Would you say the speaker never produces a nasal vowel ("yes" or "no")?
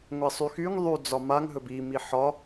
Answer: yes